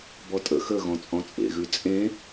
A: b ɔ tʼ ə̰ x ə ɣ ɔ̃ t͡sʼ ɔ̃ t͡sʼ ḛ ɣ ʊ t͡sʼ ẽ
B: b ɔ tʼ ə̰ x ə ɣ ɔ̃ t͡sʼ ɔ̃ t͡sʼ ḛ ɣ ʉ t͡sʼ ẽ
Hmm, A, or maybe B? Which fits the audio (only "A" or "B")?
B